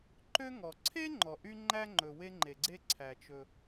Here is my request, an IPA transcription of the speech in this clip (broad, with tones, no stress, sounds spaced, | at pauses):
ǃ ø˥ ŋ ɔ˩ ǀʰ e˥ ŋ͡ǃ ɔ˩ ʔ y˥ ŋ͡ǃ æ˥ ŋ͡ǃ ɵ˩ w e˥ ŋ͡ǃ e˩ ɡ͡ǀ e˥ ǀʰ æ˩ t͡ʃ ɵ˩